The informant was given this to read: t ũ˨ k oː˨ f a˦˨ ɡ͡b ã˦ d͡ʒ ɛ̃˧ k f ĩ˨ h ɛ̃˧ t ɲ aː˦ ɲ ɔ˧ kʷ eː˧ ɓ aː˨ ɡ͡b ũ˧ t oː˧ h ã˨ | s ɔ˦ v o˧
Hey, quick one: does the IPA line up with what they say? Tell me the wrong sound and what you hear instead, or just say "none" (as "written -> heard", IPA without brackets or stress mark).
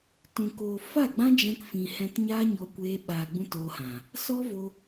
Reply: none